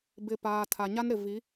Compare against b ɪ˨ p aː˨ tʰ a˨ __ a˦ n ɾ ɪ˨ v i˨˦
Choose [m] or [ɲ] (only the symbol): ɲ